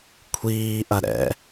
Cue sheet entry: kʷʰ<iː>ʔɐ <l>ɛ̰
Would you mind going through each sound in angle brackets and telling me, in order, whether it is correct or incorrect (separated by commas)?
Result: correct, incorrect